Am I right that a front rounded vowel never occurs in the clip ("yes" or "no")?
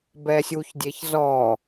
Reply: yes